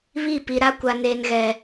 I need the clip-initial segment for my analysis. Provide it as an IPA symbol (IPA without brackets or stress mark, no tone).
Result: β